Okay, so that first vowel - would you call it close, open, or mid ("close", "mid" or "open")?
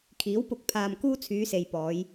close